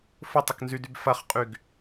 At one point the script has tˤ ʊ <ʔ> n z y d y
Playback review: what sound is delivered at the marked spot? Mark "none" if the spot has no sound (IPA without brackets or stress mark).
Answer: k